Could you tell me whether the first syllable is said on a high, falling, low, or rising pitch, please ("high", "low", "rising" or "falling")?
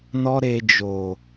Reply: high